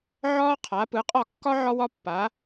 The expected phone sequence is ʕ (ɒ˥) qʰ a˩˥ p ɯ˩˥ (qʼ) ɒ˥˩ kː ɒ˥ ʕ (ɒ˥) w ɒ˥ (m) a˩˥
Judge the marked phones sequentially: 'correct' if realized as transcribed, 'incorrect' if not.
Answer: incorrect, correct, correct, incorrect

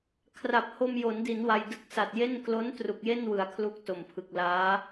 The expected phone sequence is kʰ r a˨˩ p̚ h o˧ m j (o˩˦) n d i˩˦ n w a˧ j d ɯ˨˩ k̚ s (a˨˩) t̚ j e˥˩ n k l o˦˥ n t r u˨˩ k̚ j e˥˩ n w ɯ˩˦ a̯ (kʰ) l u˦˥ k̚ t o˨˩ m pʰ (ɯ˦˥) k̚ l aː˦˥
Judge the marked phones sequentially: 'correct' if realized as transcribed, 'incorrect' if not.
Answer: correct, correct, correct, incorrect

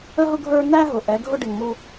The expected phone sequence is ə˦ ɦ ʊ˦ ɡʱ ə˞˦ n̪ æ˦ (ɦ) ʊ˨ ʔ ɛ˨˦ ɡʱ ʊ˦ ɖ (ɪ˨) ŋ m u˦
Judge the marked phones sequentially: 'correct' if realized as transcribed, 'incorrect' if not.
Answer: correct, correct

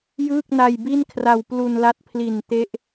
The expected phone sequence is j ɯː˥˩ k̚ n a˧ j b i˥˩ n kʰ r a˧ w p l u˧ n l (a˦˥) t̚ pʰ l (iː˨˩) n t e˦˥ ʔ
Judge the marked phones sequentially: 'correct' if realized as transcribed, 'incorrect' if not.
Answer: correct, incorrect

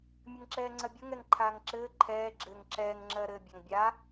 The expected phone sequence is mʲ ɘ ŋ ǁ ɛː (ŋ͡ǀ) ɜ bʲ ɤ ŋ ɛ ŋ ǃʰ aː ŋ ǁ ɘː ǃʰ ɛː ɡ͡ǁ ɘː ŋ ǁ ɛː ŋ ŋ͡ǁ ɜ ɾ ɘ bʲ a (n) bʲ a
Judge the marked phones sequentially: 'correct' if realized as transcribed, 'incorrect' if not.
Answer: correct, incorrect

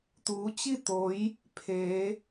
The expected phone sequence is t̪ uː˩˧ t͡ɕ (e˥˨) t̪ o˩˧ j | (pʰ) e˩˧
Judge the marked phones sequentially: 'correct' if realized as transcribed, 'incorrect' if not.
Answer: incorrect, correct

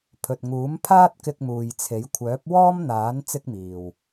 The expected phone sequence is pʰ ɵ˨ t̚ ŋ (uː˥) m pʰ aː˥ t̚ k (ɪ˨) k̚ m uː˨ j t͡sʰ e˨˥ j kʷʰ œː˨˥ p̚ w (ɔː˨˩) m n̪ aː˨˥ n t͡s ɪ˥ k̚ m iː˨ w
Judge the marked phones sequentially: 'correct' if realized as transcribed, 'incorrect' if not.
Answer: incorrect, incorrect, incorrect

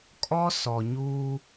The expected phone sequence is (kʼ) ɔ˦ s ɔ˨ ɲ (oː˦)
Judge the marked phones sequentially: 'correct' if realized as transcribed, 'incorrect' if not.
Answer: correct, incorrect

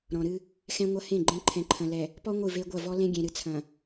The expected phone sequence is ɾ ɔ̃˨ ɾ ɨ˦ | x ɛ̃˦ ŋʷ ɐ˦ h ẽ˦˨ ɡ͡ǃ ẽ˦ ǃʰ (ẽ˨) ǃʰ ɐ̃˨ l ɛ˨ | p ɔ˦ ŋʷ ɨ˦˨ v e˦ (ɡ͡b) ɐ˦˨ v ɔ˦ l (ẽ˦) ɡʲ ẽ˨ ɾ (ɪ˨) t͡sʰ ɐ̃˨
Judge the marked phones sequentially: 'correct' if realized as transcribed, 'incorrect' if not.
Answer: incorrect, incorrect, correct, incorrect

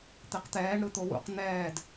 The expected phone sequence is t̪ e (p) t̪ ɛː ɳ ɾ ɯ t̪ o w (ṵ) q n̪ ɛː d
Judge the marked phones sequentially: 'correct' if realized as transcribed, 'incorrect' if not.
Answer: incorrect, correct

